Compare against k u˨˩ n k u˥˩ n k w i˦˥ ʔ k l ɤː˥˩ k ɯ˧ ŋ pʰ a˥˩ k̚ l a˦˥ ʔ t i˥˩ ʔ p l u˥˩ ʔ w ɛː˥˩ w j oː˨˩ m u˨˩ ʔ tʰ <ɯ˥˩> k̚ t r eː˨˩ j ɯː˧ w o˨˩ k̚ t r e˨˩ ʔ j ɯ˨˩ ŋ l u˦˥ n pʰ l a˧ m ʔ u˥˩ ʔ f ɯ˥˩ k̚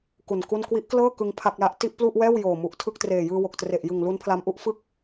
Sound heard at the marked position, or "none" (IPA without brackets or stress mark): ɯ˥˩